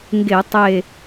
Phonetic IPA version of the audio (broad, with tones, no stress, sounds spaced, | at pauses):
ŋ ɡ e˧˩˧ tˤ e˧˩